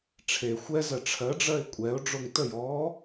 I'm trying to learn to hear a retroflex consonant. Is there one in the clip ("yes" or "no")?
yes